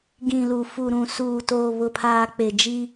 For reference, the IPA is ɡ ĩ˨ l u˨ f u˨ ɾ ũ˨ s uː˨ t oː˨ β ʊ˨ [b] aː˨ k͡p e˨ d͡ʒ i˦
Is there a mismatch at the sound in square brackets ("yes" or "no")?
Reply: yes